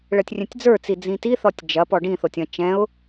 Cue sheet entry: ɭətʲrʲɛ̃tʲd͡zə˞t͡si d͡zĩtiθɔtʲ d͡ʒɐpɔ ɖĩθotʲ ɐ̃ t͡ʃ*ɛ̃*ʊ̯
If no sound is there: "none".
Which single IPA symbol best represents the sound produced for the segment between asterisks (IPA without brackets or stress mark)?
ɛ̃